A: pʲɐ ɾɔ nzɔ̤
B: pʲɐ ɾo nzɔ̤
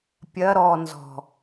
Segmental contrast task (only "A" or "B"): A